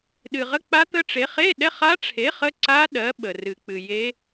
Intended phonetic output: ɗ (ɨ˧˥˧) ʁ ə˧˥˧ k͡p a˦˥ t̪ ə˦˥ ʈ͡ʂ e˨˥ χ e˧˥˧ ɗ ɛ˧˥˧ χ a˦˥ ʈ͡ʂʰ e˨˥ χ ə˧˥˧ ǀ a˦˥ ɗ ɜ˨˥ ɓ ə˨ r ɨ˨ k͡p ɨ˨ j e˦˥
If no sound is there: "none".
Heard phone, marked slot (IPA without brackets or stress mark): ɨ˨